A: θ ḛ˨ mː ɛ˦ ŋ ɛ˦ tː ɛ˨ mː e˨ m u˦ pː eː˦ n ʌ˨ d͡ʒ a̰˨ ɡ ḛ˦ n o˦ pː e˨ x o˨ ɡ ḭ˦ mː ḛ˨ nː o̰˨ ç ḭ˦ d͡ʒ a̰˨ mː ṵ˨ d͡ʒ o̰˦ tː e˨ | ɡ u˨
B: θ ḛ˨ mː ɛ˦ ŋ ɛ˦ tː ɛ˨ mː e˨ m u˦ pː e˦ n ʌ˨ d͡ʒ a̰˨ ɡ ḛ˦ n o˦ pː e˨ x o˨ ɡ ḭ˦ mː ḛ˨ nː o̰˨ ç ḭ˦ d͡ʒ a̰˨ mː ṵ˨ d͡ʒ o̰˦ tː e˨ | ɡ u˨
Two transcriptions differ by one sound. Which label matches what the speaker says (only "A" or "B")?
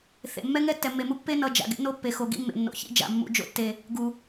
B